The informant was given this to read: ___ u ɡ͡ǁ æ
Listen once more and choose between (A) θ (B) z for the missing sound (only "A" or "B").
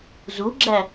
B